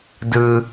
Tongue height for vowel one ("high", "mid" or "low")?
high